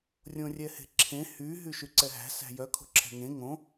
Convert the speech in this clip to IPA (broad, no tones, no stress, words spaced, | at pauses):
rʲõrʲɛhe̤ǁʰẽ hy ɦyʃyǀɛɦæ̤ sæ̤jœ kʰo̤ǁʰɛ̤ŋẽ ŋõ